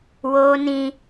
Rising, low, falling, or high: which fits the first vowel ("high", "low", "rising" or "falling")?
high